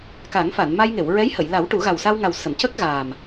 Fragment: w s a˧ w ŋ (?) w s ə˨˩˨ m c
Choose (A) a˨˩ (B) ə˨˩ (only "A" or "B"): A